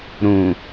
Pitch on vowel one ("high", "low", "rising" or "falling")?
low